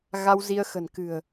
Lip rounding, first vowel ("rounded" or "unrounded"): unrounded